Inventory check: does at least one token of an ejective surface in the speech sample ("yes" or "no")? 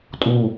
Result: yes